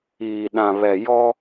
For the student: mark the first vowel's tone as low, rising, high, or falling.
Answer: low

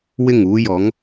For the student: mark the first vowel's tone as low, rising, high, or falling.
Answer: falling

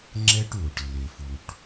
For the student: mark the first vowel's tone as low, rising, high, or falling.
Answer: high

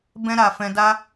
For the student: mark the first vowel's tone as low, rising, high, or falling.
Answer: high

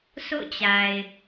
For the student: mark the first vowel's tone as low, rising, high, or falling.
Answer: falling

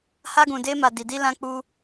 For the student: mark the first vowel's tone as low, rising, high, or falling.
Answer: high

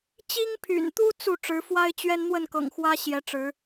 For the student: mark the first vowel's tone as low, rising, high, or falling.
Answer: high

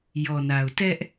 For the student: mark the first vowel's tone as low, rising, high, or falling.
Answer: low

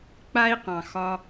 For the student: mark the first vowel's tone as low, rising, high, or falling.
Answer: high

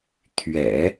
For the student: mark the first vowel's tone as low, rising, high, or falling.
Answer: low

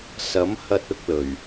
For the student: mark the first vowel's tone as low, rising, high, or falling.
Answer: rising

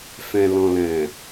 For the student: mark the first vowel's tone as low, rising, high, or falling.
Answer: low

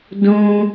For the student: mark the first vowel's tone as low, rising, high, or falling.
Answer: high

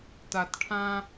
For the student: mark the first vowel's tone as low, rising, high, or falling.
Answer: low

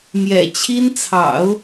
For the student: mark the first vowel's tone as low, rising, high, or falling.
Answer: low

